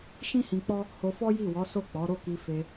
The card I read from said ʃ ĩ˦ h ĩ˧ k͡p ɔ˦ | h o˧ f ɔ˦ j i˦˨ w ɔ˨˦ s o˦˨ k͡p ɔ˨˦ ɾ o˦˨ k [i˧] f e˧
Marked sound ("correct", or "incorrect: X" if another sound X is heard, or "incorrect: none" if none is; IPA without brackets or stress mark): correct